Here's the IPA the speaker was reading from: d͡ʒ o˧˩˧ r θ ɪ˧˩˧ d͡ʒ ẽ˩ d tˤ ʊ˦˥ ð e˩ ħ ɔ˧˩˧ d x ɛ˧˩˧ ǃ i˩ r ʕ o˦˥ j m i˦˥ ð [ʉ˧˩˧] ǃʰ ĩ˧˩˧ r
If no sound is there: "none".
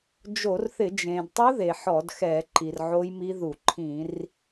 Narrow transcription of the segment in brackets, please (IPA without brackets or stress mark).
u˧˩˧